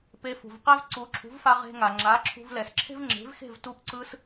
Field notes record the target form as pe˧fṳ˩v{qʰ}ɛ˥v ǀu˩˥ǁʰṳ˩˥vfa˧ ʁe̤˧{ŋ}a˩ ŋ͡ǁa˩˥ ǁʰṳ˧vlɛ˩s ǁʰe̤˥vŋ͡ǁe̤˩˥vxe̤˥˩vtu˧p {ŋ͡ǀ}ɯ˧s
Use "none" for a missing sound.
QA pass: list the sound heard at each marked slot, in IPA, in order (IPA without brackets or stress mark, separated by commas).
q, ŋ, ǀ